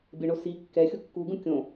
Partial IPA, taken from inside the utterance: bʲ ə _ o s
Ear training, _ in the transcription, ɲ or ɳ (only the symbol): ɳ